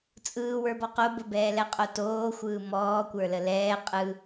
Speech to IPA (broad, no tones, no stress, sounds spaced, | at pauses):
t͡sʼ ɯː w ə˞ b ɔ q o b ə b ɛː l ɛ qʼ o t oː xʷ ɯː m ɔː kʷ ə˞ l ə l ɛː qʼ ɯ